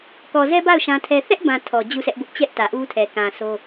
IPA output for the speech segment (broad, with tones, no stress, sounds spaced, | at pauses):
k ɔ˨ z ɛ˦ b a˦˨ ʊ̯ ʃ ã˦ tʰ ɛ˦ θ ɛ˦ ʔ b ã˨ tʰ ɔ˨ d͡ʑ u˦˨ s ɛ˦ ʔ b ʊ˦ ʔ t͡ɕ ɛ˦ ʔ t ä˨ ʔ u˦ tʰ ɛ˨ k ã˨ sʰ o˦